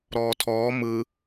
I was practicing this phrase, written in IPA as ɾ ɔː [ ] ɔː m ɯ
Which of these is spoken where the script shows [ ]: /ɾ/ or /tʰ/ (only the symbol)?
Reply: tʰ